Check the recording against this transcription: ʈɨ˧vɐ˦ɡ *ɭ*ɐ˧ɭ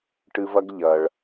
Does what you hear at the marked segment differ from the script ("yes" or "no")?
yes